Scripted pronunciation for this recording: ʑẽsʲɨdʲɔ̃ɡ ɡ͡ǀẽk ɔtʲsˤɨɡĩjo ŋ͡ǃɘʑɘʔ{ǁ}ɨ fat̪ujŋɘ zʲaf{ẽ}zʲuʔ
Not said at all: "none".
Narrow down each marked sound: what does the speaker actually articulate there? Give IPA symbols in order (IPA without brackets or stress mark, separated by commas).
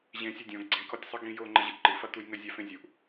ǃ, ẽ